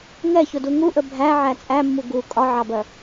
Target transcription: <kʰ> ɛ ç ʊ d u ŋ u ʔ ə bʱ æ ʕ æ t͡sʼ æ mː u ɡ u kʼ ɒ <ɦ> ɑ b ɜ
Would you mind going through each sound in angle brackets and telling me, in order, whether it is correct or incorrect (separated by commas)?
incorrect, incorrect